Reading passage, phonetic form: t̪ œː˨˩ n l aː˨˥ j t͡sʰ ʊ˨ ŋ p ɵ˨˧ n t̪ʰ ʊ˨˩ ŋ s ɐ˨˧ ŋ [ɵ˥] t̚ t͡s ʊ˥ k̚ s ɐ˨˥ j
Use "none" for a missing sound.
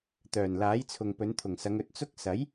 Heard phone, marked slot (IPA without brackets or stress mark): ɵ˨˥